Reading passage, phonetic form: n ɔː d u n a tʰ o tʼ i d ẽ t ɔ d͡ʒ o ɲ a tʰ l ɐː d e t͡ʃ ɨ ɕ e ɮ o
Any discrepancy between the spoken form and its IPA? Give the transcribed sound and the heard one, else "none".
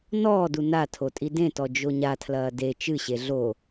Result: none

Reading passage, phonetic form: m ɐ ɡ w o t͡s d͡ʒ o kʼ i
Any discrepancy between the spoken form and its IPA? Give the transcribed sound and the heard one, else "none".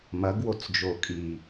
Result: none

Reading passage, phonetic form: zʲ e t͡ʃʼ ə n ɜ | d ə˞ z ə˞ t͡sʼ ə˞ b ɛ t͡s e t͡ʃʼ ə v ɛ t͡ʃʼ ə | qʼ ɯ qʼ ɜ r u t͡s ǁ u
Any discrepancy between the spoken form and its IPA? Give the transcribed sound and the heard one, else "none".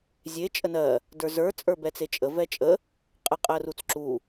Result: ɯ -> ə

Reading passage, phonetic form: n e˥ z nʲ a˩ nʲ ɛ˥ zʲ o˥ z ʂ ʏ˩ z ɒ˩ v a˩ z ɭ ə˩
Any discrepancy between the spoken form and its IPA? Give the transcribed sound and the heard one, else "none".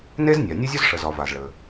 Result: ʏ˩ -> ə˩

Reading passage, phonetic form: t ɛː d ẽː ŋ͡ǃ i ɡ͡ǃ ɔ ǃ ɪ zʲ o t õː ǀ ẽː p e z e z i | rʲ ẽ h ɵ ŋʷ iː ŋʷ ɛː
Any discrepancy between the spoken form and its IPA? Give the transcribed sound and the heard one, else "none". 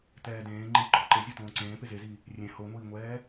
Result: ɵ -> o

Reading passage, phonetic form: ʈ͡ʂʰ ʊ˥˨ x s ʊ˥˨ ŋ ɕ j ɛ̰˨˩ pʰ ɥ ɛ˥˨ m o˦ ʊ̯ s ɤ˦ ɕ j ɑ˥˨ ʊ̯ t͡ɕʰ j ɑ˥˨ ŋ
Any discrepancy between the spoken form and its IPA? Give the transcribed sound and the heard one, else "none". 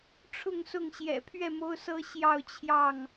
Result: x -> ŋ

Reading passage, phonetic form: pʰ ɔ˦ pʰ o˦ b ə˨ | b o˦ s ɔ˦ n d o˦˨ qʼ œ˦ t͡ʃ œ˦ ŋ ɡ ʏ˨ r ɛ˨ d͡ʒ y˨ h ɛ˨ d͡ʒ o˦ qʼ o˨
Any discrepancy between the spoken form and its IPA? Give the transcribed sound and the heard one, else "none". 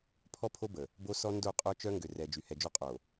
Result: none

